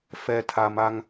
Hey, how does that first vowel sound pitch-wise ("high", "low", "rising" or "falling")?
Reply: low